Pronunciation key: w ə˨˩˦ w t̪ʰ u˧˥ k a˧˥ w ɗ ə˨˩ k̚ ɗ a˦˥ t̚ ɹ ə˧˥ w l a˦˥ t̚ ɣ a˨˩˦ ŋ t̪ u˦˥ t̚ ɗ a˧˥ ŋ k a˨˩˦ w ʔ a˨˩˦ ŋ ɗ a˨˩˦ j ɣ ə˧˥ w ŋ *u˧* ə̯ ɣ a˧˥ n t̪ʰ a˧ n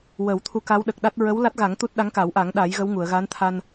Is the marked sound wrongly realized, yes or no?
yes